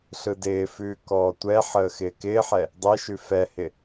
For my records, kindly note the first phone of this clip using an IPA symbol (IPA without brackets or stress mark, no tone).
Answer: ɬ